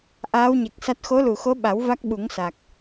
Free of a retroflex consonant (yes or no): yes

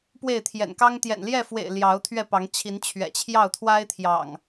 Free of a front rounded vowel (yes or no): yes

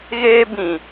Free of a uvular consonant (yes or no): yes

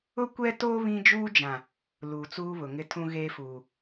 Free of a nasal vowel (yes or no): no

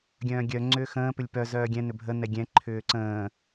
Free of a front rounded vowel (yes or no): no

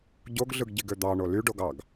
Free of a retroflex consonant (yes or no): no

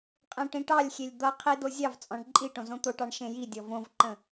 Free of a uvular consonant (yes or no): no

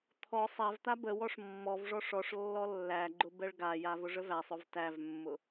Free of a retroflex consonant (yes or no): no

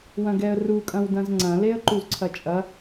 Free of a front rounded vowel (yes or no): yes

